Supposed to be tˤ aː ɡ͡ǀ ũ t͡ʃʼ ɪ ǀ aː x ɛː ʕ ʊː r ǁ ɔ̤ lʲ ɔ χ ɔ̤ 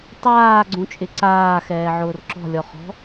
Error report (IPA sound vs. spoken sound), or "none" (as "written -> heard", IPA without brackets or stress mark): none